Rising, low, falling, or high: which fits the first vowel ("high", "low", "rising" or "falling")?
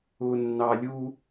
low